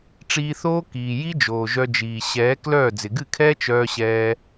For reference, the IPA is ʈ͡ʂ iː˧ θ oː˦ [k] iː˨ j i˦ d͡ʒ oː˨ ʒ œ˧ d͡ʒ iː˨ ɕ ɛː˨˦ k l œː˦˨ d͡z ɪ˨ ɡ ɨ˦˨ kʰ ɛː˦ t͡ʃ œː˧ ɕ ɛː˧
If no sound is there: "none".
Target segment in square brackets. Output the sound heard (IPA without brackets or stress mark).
k